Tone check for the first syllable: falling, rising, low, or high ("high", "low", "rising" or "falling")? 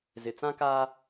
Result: low